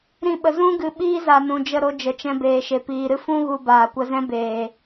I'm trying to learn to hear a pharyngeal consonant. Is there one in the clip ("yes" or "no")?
no